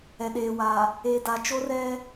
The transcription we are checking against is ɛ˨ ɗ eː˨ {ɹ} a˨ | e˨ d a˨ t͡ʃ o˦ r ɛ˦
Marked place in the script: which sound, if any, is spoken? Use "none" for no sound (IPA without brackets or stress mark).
w